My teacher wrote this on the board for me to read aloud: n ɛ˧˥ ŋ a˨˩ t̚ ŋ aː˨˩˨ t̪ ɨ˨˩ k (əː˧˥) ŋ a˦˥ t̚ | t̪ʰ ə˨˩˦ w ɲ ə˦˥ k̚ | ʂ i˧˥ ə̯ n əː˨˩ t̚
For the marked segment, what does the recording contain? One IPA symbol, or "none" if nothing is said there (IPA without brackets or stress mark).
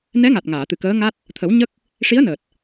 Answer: əː˧˥